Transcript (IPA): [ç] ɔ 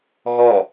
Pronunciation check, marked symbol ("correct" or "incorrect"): incorrect